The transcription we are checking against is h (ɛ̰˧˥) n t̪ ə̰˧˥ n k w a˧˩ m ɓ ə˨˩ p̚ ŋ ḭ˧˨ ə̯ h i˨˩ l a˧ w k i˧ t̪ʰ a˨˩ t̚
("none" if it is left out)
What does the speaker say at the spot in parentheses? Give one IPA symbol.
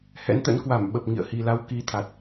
ɛ̰˧˥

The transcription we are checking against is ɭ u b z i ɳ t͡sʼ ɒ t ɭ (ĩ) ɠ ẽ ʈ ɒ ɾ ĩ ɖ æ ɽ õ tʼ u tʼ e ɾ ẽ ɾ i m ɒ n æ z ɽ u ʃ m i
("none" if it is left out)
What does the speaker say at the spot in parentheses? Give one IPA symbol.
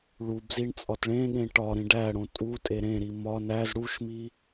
ẽ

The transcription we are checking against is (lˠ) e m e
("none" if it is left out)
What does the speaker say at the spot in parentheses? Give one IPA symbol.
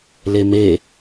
l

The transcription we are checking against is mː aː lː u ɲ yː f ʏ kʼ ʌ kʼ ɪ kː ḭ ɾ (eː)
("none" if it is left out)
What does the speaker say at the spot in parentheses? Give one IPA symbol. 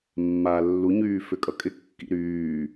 yː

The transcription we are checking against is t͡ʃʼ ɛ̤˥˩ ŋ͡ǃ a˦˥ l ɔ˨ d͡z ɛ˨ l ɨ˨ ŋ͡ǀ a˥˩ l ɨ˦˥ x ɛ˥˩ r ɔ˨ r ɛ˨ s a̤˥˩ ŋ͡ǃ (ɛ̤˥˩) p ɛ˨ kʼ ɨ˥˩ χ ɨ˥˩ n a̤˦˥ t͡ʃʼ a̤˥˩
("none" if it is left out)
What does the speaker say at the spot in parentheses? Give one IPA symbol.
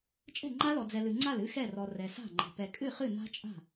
ɛ̤˨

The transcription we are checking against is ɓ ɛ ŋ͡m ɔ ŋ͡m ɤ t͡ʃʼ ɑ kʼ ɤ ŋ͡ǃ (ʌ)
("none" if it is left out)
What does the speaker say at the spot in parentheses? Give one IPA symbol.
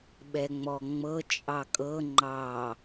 ɑ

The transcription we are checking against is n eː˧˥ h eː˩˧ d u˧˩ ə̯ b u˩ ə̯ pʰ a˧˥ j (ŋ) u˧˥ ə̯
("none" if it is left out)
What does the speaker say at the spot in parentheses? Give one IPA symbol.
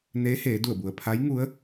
ŋ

